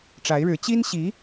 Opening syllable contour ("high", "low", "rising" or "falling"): rising